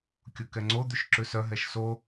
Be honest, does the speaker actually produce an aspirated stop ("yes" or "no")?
no